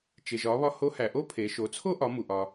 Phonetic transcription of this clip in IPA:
t͡ʃe˩ʒɒ˩˧βɒ˧ ho˧˥hæ˩ʔo˥ pʰe˩˧ ʃo˩˧ t͡sʰo˥ʔɒ˩˧ mu˩ʔɒ˩

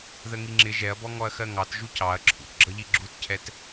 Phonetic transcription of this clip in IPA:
ðəŋiŋ͡ǁɪ ʒɛɐ̯bɔ ŋɔɐ̯xɜŋɑt ʒucɑɐ̯ ǁʰṵtɡ͡ǁʌʎi ɡ͡ǁutcʰɛt

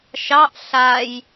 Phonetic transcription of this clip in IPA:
ʃɑʔ ɬaj

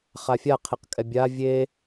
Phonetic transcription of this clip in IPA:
χafʲaqʰeq kʼɛbʲa vʲe

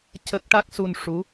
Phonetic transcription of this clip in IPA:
cə˦˥k̚ ʈa˦˥k̚su˧nʂu˧˥

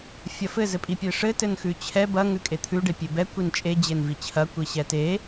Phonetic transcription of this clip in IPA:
fʲɐfɘ zɘpʼipʲeʂɘ tɘnxʉt͡ɕʰɛ bɐ ŋʉkʼet̪ʰʉ ɖepʲebɛ kʷint͡ʃʼe d͡ʑenvit͡ɕʰɐ kʷiɕɛte

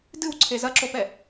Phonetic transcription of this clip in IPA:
dɨwǀʰe zɐǁopɛ

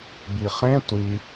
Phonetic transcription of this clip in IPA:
biχẽ tʷi

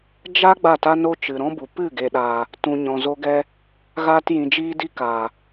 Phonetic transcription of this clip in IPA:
d͡ʒa˦ ɡ͡ba˦˨ta˦no˦ t͡ʃɨ˨ɾɔ̃˦bu˨ pɨ˦˨ɡe˨ɗaː˨ | tũ˨ ɲɔ̃˨zo˧ɡɛ˧ | ɣaː˧tjĩ˨ d͡ʒiː˦di˦kaː˨

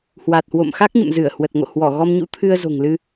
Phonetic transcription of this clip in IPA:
hwa˨˩t̚hwo̰˧˨m xa˦˥k̚ɲə̰˧˨m zɨ˧˩ə̯ hwə˨˩t̚ŋo̰˧˨hwɔ˧˩ ɣɔ˧mɲṵ˧˥ t̪ʰɨ˧ə̯zo̤˨˩ŋlɨ˧

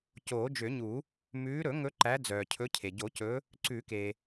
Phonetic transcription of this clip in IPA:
coː˨˩˦d͡ʒø˨˩˦ɲu˨˩˦ | mʉː˨˦ɾɵ˨˩˦ŋɵ˨˦ ǃæ˨˦d͡zœː˩cʰɵ˨˦ cʰe˩ɟo˨˩˦cɵ˨˦ | ǀʉ˨˩˦ke˩

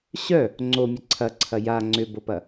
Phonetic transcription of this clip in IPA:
ɕœ | ŋ͡ǀomʲə ǀʰɐǀʰɐ ja ŋ͡ǀʏbopɐ

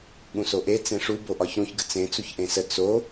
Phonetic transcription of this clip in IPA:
ɠũsoʔe t͡sẽʂu boʔɒçɾũç ɡət͡sẽ t͡suçʔẽsə t͡so

